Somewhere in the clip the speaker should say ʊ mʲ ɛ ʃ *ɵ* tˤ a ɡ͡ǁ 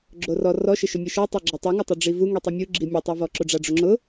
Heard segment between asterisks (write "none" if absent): ɔ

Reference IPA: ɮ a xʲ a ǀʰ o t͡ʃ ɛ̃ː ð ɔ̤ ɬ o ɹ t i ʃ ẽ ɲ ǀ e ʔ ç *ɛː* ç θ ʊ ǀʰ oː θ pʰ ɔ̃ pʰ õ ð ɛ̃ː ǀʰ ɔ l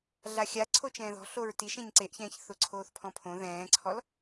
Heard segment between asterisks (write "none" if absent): ɛ̃ː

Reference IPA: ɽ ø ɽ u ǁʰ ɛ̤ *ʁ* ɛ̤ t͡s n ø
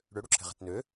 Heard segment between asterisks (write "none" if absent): ʁ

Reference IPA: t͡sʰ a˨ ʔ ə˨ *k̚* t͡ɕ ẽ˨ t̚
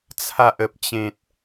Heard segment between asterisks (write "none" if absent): p̚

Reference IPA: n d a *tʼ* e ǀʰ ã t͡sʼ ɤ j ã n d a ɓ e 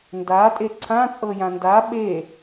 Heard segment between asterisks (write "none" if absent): tʼ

